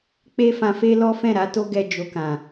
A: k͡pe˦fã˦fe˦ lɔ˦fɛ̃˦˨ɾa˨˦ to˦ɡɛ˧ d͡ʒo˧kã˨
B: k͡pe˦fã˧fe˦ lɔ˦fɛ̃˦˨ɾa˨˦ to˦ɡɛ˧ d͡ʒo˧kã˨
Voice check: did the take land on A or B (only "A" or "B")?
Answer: B